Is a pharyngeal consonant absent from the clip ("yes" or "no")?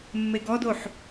no